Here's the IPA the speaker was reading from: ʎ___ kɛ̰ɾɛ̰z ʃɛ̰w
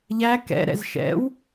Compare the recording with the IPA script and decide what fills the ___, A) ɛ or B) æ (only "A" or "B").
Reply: B